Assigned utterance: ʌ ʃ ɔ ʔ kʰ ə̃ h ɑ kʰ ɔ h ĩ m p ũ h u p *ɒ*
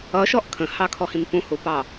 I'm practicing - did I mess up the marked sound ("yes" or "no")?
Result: yes